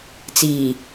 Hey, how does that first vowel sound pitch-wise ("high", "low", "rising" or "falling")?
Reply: low